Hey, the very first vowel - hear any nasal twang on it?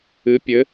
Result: no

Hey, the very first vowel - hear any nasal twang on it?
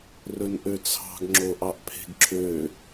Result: no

